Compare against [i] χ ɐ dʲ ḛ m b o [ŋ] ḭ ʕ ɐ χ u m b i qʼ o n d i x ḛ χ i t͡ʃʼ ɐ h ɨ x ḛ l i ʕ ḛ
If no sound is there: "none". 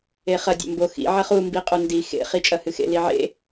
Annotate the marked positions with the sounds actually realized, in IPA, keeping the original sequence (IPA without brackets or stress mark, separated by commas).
e, x